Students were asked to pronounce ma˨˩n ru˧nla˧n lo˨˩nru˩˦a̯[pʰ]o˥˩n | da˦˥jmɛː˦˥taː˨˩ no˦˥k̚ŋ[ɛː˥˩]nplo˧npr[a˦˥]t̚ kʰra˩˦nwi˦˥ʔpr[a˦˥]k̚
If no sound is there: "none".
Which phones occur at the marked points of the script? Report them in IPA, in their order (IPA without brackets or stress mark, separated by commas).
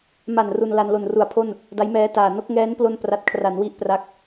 pʰ, ɛː˦˥, a˨˩, a˦˥